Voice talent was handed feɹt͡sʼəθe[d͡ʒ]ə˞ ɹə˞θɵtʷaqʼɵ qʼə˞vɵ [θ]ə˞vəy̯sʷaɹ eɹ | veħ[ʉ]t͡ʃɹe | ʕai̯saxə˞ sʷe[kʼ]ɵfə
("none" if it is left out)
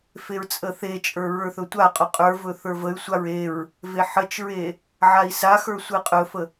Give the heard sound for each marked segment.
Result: t͡ʃʼ, θ, ə, qʼ

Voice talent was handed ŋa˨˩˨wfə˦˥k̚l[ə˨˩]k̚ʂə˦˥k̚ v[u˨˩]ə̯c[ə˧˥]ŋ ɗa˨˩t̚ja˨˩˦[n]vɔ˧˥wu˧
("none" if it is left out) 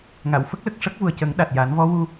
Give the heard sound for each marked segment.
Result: ə˨˩, u˨˩, ə˨˩˦, n

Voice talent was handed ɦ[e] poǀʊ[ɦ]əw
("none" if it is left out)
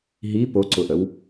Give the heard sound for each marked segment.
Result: i, ʔ

